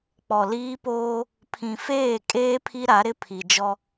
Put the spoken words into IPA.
k͡p ɔ˨ l iː˦ p oː˦ | pʰ ĩ˨ f eː˦˨ kʼ eː˦ pʰ i˦ ɾ a˨˦ ɾ ɪ˦ pʰ i˨ d͡ʒ ɔ˦

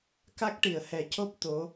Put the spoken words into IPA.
k a˦˥ k̚ ʈ i˨˩˨ ə̯ h ɛ˨˩˦ c o˦˥ p̚ t̪ o˧˥

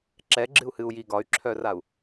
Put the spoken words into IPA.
ǁ ɛ ɡ͡ǁ ɨ u̯ h ɨ u̯ j i ɡ ɒ y̯ ǁʰ œ r a u̯

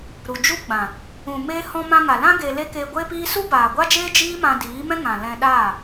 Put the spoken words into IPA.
ɾ u˨ d͡ʒ u˦ ɡ͡b ã˨ | ũ˨ m eː˧ h ɔ̃˧ m ã˧ ŋ a˨ l ã˦ ɡ e˧ l e˦ k eː˧ ɡʷ eː˦ p iː˦ s u˦ b aː˨ ɡʷ a˦ d͡ʒ eː˦ d͡ʒ iː˦ m ã˧ d iː˨˦ m ɛ̃˦ ŋ ã˨ l ɛ̃˧ ɗ aː˦˨

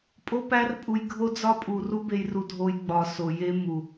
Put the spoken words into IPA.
pʼ o˦ p æ˦ r pʼ u˧ j ɡʱ o˦ d͡z ɒ˦ pʼ u˨ r u˦ b e˧ j r u˧ dʱ o˧ j ɡ͡b ɒ˨ s o˨ j e˦ m u˨

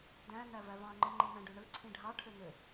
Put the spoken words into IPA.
d æ̃ n̪ æ v æ v ɑ̃ ŋ͡ǃ ɯ ŋ͡ǃ ĩ n̪ æ̃ ɖ ø ɳ ɯ ǀʰ ĩ ɖʱ ɑ ʈʰ ø n̪ ø

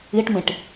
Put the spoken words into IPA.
i ʈ m ĩ ʈ

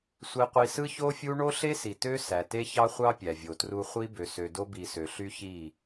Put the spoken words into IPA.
sʷ e˦ qʷ i˦ s ɯ˦ ç o˦ fʲ u˦ ɳ o˦ ɬ e˦ s i˨ t ø˦ s æ˨ t e˦ ç ɑ˦ χʷ ɑ˦ pʲ æ˨ vʲ o˨ t r u˦ χʷ i˦ b ø˨ s ø˨ d o˦ b i˨ s ø˨ ɬ y˦ ç i˦˨

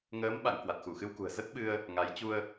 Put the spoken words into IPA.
ŋ əː˨˦ m ɓ a̰˧˨ ŋ k w a˨˩ t̚ x u˧˩ x ɨ˧ w k ṳ˨˩ ə̯ z ə˦˥ t̚ ɓ ɨ˧ ə̯ | ŋ a˨˦ j t͡ɕ u˧ ə̯

